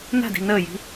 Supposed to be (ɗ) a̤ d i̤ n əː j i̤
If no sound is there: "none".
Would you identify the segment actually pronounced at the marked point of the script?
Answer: n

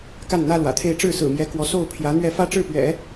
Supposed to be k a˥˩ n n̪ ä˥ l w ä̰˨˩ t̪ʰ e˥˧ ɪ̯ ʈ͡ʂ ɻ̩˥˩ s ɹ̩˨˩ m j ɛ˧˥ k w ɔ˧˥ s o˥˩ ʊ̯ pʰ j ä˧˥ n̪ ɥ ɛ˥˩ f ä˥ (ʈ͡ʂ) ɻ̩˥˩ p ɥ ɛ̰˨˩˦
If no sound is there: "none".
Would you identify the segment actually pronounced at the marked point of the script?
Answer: ʈ͡ʂ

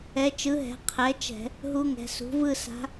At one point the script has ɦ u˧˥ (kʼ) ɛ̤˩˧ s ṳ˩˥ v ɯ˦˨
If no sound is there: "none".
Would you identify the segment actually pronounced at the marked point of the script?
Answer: ŋ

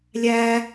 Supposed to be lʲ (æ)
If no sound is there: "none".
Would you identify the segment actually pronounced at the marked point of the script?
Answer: æ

